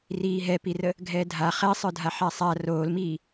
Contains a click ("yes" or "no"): no